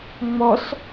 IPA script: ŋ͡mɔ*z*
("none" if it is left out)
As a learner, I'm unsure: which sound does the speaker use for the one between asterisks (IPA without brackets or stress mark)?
s